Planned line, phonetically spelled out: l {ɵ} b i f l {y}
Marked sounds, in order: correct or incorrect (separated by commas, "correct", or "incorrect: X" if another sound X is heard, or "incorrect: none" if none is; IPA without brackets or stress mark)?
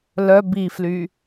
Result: incorrect: œ, correct